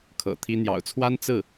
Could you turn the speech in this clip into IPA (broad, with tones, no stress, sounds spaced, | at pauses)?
kʰ ɤ̰˨˩ t̪ʰ i˥ n̪ j ɑ̰˨˩ ʊ̯ t͡sʰ w a˥ n t͡s ɹ̩˥˩